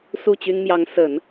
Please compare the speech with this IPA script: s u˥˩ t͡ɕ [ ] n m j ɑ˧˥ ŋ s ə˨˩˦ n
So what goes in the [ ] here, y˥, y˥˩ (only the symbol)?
y˥